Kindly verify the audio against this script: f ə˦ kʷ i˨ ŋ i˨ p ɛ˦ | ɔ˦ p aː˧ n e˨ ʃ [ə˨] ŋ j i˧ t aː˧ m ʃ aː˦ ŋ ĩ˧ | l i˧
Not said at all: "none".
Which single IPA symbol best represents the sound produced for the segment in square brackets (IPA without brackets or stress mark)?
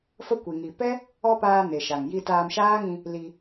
a˨